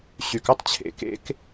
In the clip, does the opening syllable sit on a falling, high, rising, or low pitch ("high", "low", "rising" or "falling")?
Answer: low